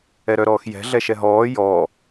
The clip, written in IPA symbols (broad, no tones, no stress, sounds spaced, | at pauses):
ɛ ɾ œ ɾ ɔː x j ɛ̤ ɮ ɛ ʃ ɛ ɦ ɔː j ɔː